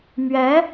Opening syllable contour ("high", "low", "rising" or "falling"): rising